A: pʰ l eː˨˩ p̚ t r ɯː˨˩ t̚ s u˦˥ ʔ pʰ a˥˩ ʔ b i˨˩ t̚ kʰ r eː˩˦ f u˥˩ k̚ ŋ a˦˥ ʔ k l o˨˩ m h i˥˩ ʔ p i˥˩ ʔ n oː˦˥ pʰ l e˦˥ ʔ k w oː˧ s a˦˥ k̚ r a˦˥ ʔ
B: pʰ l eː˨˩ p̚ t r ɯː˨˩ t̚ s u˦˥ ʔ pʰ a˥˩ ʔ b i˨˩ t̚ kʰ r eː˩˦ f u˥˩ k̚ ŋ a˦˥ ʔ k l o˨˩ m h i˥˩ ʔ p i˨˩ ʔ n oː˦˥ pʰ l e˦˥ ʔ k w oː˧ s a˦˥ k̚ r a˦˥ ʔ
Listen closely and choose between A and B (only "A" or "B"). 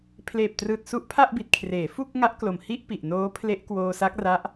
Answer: B